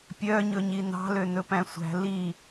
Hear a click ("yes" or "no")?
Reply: no